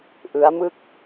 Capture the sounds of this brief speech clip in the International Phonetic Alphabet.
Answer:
ʔɯ˦˥a̯mɯ˥˩k̚

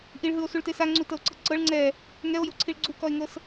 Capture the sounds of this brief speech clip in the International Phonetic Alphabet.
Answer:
ʔiɭɦɯo̯suɭte saŋ͡ǀutɤo̯ǀɤ ǀɤɭ ŋ͡ǀɛ | ŋɛo̯joǀʰiɭ ɡ͡ǀukɔe̯ŋɤs

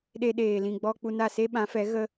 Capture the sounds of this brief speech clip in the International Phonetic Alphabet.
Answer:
ɗe˧ɗeː˨ lĩ˨ɡ͡bɔ˧ k͡pu˧na˦˨se˦ ɓã˨˦fɛ˨˦ ɣə˦

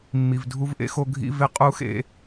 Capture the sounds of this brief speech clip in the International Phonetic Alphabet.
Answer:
mːi˨vdʱu˦vʔḛ˦xo˦ ɡʱḭ˦ve˦ qʼu˦xḛ˦

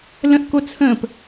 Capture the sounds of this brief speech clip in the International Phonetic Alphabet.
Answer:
lə̃ʔko t͡sʰə̃ːp

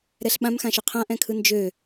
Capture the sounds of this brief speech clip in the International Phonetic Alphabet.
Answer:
ɾɛɬɓãm xãʃøqʰã ʔɛ̃kʰɯnd͡ʒø

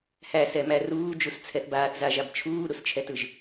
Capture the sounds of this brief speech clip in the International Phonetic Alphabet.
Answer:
hæsɛmæ ruːd͡ʒust͡sʰɛθ baːθzaʒab t͡ʃʰuːɾust͡ʃʰɛtɯʒ

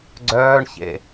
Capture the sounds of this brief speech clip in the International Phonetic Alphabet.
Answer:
ɡ͡ǀœːɳçḛ

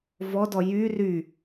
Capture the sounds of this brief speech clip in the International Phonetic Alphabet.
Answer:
vɔdɔ jy ry

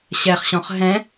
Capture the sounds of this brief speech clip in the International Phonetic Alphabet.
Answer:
ɕɛχɕɔ̃χ ɦɛ̃

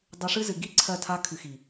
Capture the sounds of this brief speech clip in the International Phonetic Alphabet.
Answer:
dˤɨ˧ʂɨ˦zɨ˨ ɡi˦ ǀʰɜ˦˨ tʰa˧kʰɨ˨xi˨

